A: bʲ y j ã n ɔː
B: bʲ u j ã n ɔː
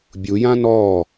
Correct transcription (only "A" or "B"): B